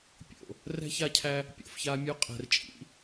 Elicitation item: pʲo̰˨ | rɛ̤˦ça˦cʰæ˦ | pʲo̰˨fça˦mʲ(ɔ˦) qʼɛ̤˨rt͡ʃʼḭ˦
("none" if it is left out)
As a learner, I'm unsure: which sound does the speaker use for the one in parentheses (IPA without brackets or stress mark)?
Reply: o˦